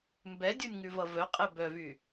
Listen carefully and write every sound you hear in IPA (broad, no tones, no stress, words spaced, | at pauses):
mbɛdʲonʲ ŋʉvʌvœqʼɛ bœvy